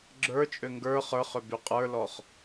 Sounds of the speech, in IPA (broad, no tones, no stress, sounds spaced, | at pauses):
ɡ͡ǁ ə˞ t͡ʃʼ ø ŋ ɡ ə˞ χ ə˞ χ ø b y qʼ ə˞ l ɔ χ